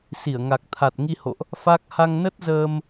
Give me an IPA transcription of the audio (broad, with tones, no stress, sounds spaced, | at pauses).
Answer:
s i˧˩ ə̯ ŋ a˨˩ k̚ t̪ʰ a˨˩ t̚ ŋ i˧ h o̰˧˨ ʔ | f a˦˥ k̚ h a˧ ŋ n ə˦˥ t̚ z əː˧ m